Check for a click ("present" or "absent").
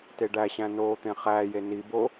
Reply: absent